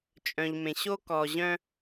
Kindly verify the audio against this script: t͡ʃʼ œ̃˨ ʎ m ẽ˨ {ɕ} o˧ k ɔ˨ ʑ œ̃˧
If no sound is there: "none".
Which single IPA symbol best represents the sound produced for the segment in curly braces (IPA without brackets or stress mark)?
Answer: ɕ